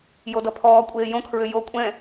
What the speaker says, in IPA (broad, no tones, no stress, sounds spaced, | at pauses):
j o d ʌ pʰ ɔː kʷʼ eː j õ kʰ ɹ ʏ j o kʷʼ ɛ̃